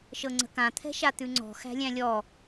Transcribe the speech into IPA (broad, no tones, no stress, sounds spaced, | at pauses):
ʃ ɤ ŋ͡ǀ ə̤ k ã t̪ʰ ɛ̤ ʃ a t̪ ʉ ŋ͡ǀ ɔ̤ x æ̤ lʲ æ̃ lʲ ɔ